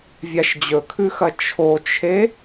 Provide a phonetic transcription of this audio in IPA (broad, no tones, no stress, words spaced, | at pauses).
vʲaʃd͡ʑɵkʰʉxɐ t͡ʃʰot͡ʃʰe